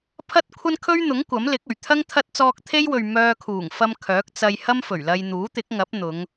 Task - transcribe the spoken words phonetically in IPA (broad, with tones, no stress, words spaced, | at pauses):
pʰɐ˥t̚kʷʰɐ˥n kʰɵ˥ɥn̪ʊ˨˥ŋ kʷɐ˨˥mlɪ˨˥k̚ɵ˨˩ɥ t̪ʰɐ˥ŋ t̪ʰɐ˥t̚ t͡sɔː˧k̚t̪ʰe˥jwɵ˨ɥ mœː˧kʰuː˨˩ŋfɐ˧m kʰœː˨˥k̚t͡sɐ˧j hɐ˥mfɵ˨˩ɥlɐ˧jn̪uː˨˥ t̪ɪ˨˥k̚ŋɐ˨˥p̚n̪ʊ˨˧ŋ